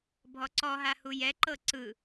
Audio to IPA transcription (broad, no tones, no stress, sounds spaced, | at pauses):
bʱ ɔ ǀ ɔ ɦ a h u j ɛ ǃ ɤ ǀ ɯ